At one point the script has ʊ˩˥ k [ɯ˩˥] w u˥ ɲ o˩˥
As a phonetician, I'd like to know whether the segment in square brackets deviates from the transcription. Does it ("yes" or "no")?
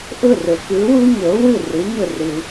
no